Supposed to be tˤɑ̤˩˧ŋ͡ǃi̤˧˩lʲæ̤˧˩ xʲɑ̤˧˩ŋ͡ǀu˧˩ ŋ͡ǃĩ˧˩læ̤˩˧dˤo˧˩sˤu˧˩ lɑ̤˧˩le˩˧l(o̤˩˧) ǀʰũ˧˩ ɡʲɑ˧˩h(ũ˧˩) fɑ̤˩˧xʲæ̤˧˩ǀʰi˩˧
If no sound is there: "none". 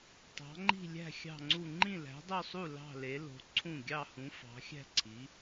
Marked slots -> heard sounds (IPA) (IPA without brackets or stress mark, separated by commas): o̤˩˧, ũ˩˧